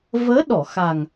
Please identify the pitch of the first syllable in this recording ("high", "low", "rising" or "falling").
rising